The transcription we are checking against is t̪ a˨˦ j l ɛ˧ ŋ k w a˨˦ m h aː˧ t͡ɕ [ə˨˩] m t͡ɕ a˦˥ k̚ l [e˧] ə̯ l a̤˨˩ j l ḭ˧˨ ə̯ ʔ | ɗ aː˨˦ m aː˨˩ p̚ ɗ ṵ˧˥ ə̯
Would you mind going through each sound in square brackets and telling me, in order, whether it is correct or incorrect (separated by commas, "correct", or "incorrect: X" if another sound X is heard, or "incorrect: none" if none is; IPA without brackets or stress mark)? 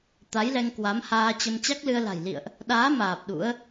incorrect: ə˧, incorrect: ɨ˧